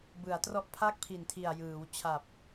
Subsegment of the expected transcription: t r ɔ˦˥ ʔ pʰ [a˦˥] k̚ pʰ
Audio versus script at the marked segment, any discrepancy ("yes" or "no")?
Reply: yes